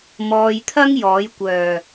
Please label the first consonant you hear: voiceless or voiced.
voiced